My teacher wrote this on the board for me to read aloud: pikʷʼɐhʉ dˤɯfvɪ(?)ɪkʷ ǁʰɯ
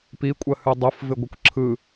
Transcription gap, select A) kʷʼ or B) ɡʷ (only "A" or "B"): B